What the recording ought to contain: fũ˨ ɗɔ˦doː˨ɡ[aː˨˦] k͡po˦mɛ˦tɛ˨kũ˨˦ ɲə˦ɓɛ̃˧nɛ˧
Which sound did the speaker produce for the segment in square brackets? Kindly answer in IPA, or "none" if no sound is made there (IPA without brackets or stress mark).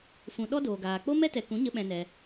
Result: aː˨